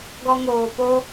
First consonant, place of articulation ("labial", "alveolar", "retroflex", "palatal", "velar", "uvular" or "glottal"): velar